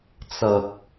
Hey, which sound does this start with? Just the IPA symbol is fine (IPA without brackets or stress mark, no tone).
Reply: t͡s